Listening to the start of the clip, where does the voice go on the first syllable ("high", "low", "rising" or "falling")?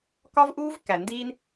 high